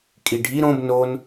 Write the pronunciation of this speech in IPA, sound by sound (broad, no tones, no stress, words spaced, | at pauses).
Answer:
kʼiɖʱi ɾõb non